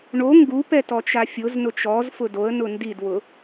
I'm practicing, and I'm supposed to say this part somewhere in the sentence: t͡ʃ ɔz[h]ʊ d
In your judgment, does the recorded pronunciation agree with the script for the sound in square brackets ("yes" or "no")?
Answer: no